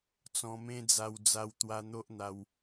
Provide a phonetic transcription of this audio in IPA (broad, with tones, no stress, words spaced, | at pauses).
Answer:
t͡sɔ̃˧mẽ˦d͡za˧w d͡za˧wt̪wa˧n̪o˦ʔn̪a˧w